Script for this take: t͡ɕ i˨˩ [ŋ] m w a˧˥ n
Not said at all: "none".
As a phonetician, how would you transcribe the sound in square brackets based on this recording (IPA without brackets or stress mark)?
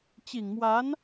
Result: ŋ